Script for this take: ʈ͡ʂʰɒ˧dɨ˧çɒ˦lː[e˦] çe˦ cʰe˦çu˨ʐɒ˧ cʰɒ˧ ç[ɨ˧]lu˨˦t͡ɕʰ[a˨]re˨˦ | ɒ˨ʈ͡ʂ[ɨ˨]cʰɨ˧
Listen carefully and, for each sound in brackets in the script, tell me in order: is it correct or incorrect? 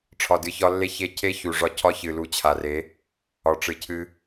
correct, incorrect: ɨ˨, correct, correct

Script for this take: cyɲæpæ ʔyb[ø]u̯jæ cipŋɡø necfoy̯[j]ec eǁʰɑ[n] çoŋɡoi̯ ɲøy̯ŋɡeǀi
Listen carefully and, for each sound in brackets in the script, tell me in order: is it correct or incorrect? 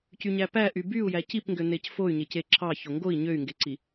incorrect: y, incorrect: ɲ, incorrect: none

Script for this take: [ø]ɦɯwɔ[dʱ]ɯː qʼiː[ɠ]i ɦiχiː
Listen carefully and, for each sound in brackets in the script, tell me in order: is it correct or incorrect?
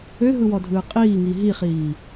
correct, correct, incorrect: ŋ

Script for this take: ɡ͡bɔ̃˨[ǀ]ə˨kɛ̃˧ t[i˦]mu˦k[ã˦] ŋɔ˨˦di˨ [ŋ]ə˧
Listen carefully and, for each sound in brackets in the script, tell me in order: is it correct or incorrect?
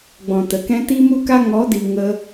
incorrect: t, correct, incorrect: a˦, correct

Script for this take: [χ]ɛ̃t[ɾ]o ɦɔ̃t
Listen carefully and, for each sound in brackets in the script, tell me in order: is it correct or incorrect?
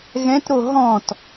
incorrect: ɣ, correct

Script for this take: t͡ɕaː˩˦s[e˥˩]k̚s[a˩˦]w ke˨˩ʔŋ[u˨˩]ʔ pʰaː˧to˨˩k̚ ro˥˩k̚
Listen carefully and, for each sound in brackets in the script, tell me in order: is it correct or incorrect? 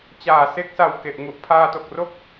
incorrect: e˦˥, incorrect: a˨˩, correct

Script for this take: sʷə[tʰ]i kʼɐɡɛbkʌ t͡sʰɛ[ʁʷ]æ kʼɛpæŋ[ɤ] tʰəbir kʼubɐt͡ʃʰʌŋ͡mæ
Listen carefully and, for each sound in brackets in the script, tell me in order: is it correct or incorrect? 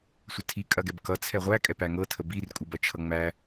correct, correct, correct

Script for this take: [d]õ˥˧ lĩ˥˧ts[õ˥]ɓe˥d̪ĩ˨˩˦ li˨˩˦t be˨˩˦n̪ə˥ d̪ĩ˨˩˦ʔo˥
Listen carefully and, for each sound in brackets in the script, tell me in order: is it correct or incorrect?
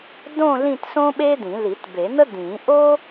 correct, correct

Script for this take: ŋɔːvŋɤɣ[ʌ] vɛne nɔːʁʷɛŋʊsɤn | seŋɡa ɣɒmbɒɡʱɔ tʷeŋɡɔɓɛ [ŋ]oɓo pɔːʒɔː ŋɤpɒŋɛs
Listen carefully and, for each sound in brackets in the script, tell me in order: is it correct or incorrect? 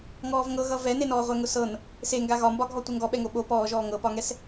correct, correct

